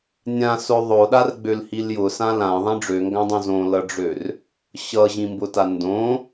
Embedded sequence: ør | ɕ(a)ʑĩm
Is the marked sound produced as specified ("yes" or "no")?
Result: no